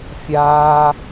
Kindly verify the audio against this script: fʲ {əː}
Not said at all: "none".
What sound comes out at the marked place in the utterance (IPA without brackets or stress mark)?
aː